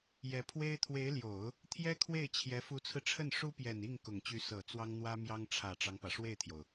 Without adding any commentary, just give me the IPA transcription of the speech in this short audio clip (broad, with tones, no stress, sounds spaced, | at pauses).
j ɛ˧˥ pʰ w e˥ ɪ̯ t̪ʰ w e˧˥ ɪ̯ l j o˨˩˦ ʊ̯ | t̪ʰ j ɛ˥ kʰ w e˥˩ ɪ̯ t͡ɕʰ j ɛ˧˥ f u˧˥ t͡sʰ ɹ̩˧ ʈ͡ʂʰ ə˥˩ n ʂ u˥ p j ɛ˨˩ n i˥˩ ŋ k ʊ˨˩ ŋ t͡ɕ y˧˥ s ɤ˨˩ t͡s w ɑ˥ ŋ n̪ w ä˥ m j ɑ˥ ŋ ʈ͡ʂʰ ä˨˩ ʈ͡ʂ ɑ˦ ŋ p ä˩ ʂ w e˥˩ ɪ̯ t̪ʰ j o˩ ʊ̯